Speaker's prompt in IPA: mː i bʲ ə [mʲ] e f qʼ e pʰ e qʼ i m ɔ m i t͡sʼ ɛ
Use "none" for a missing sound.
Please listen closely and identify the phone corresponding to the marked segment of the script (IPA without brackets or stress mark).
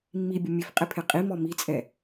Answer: mʲ